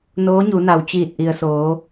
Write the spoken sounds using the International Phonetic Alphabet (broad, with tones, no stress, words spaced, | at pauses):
noː˧˥ɲu˩˧na˩w t͡ɕiː˧˩t̚ʔi˩ə̯soː˩˧